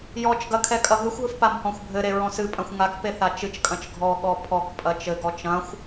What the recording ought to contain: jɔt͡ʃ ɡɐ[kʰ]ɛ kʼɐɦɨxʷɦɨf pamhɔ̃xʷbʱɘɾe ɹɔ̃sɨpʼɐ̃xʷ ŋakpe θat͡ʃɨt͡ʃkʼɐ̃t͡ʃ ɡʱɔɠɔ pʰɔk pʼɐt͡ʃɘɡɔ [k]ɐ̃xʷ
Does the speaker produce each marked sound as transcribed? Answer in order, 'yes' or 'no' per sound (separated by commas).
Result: yes, no